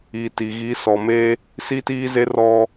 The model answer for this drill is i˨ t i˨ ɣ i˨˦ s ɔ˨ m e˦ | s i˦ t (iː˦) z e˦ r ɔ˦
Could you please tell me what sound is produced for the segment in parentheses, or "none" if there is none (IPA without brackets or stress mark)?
iː˦